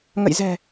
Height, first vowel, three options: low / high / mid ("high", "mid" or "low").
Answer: mid